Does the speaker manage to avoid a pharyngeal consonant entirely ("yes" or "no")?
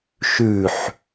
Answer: no